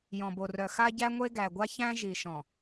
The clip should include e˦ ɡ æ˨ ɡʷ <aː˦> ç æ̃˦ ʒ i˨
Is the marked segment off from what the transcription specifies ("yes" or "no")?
yes